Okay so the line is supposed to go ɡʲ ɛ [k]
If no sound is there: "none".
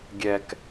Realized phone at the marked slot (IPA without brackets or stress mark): k